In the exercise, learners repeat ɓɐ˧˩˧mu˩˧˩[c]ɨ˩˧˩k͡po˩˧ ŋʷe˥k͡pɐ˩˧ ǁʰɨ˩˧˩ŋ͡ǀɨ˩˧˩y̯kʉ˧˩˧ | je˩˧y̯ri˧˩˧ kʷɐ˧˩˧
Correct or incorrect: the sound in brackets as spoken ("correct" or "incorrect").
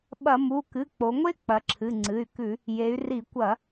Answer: incorrect